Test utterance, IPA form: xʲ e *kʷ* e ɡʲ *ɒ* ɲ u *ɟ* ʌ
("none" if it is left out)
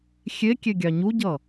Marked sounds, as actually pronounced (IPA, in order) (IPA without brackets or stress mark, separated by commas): kʲ, ɑ, ɟ